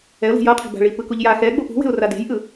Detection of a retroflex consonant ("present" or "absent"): present